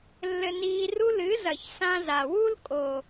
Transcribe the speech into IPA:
lː ɘ˧ n iː˧ r u˦ l ɨ˨˦ z ɐ˨ ç s ã˧ z a˨ w u˦ l kʼ o˨

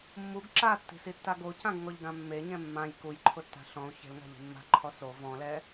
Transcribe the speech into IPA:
mː u ɡ ǁ a tː i̤ s i tː a ɡ o c ã ɡ ŋ ɔ ʎ ɡ ã mː e ɲ ɛ̃ mː ã j k u j ǃʰ ʊ tː a̤ ɬ ɔ̃ u̯ ç e̤ l ŋ a̤ ʎ i̤ mː a̤ ǃʰ ɔ s o v ɔ̃ l ɛ

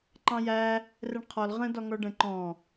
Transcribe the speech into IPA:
ǃ ɑ̃ j æ | r ɛ ɳ qʰ ɔ l ʁ ə̃ d ɒ ŋ ɔ ɖ ə̃ ǃ ɔ̃

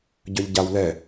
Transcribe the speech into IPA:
ɟ œ ʎ ɟ a w l ɛ

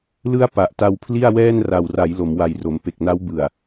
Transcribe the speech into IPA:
l ɯ˥˩ a̯ p a˨˩ ʔ t a˧ w pʰ l i˥˩ a̯ w ɛː˥˩ n r a˨˩ w r a˩˦ j l o˩˦ m w a˨˩ j r o˩˦ m p e˨˩ k̚ n a˦˥ w b ɯ˨˩ a̯

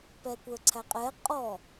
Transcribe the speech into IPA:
p ɛ kʷ ə˞ ǀʰ æ qʼ ɛ qʼ ɔ

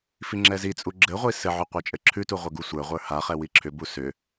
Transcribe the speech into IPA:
f i ŋ͡ǁ ɛ z i t͡sʼ u ɡ͡ǁ ɘ ʁʷ i s ɘ ʕ ʏ qʷ ə˞ t͡ʃʼ ɘ ǁʰ ʉ t u ʁʷ ɘ ɡ u sʷ ə˞ ʁʷ ə˞ h a χ ɛ w i ǁʰ ʏ b u s ʏ

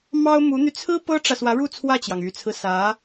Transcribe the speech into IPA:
m ɑ˥ ʊ̯ m u˧˥ n̪ y˧ t͡sʰ ɹ̩˥ p ɤ˥ ʈ͡ʂ ä˨ s w ä˧˥ ɻ u˥˧ t͡sʰ w ä˥˩ t͡ɕ j ɑ˩ ŋ y˨˩ t͡sʰ ɹ̩˦ s ä˧˥

